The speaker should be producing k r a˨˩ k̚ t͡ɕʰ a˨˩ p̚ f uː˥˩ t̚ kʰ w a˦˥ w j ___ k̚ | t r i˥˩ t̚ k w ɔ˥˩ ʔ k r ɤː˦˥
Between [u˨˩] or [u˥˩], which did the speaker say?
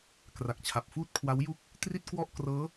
u˥˩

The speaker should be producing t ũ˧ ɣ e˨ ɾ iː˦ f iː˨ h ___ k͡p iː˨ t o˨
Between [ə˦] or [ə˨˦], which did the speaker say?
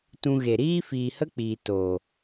ə˦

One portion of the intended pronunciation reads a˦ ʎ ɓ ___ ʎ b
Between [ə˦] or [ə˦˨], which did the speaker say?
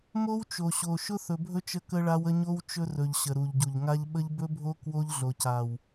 ə˦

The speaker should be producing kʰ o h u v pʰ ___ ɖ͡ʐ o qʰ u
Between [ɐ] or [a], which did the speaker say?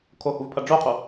ɐ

